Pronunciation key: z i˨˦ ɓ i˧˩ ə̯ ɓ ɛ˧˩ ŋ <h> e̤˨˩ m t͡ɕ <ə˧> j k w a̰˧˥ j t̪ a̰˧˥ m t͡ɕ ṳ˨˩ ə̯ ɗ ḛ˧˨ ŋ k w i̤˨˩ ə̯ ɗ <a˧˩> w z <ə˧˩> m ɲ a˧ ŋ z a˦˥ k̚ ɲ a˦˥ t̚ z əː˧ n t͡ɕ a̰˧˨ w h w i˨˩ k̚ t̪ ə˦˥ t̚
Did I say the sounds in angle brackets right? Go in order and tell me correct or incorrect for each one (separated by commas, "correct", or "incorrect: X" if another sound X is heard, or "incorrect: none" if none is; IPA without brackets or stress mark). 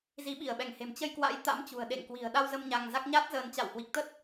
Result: correct, correct, incorrect: a˧, incorrect: ə˧